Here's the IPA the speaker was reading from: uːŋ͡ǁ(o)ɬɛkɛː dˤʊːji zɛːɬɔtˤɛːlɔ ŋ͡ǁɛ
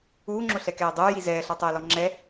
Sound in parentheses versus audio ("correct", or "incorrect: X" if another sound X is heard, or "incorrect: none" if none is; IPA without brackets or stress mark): correct